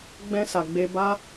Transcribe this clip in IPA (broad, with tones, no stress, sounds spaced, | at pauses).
ɡ͡b ɛ̃˧ s a˨ ɡ͡b e˧ b a˦